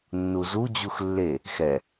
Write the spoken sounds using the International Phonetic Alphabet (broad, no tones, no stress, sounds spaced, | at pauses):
nː u z u d͡ʑ u x lː e | x ɛ